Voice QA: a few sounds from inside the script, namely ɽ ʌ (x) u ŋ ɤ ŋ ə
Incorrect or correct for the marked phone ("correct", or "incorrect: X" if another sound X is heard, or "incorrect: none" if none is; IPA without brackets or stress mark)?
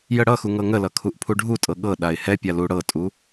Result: correct